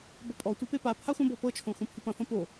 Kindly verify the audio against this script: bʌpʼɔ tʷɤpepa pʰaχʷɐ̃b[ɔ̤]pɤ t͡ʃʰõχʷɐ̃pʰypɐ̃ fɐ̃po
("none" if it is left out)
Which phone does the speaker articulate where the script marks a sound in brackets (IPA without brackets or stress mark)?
ɔ